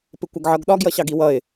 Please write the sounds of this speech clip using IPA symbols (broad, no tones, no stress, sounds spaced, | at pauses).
p ɪ kʷ ʌ ɡ ʕ ʌ ɡ ɗ ɒ ɡ j ʌ ɕ ɑ ɡ i w ʌ ɪ̯